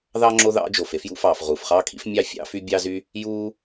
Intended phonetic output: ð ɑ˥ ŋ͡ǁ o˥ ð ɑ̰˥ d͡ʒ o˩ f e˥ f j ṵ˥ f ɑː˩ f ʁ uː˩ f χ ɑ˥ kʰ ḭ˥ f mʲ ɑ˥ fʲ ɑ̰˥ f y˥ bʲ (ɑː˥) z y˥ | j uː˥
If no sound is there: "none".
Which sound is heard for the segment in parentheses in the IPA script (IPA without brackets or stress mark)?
ɑ˥